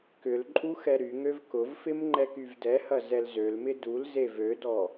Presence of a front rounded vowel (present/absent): present